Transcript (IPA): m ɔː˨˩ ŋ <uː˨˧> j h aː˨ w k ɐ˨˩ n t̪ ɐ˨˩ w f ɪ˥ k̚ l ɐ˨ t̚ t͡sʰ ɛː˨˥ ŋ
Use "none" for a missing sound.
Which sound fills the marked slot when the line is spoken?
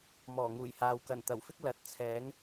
uː˨˩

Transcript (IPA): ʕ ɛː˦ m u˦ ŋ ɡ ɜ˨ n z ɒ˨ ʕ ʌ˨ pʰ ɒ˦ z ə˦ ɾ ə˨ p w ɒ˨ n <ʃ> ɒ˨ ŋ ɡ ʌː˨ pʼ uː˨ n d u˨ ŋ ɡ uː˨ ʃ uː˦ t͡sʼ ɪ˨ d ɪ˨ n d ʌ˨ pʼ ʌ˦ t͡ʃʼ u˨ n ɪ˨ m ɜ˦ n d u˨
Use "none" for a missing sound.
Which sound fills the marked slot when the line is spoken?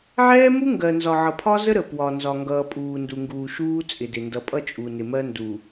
z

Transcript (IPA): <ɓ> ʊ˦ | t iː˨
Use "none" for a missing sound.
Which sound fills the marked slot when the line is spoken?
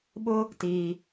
ɓ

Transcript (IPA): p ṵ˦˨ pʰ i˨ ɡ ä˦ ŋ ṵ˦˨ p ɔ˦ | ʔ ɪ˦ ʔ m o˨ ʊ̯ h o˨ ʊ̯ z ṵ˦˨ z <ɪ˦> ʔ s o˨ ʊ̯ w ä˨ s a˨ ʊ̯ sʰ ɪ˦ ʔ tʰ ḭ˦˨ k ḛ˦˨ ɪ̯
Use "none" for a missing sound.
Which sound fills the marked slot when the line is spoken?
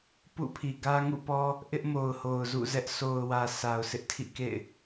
ɛ˦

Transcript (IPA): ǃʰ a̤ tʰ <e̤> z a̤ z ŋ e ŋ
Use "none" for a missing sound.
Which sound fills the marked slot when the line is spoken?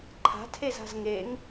e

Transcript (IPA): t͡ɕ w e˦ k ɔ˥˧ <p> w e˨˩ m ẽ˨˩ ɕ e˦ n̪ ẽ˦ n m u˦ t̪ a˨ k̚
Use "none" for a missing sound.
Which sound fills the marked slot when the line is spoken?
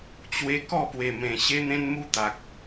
p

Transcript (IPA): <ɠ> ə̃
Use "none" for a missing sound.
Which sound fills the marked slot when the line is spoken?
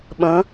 ɓ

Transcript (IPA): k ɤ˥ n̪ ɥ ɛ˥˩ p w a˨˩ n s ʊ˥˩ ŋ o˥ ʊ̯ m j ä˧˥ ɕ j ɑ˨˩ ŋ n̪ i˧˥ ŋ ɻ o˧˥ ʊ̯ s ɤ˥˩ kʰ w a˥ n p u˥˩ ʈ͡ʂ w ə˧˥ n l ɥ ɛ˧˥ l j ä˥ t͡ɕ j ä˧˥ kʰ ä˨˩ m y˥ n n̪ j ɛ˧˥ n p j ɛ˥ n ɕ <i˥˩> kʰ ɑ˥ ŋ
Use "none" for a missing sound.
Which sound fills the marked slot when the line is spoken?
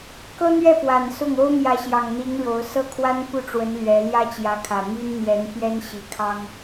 i˧˥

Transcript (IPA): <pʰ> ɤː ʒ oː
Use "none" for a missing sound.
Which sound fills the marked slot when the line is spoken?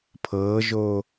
pʰ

